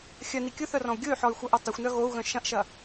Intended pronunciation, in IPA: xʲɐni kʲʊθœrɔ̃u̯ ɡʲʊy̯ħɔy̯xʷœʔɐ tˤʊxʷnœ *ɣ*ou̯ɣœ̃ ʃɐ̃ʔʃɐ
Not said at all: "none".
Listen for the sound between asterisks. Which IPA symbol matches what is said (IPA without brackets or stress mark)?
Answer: ɣ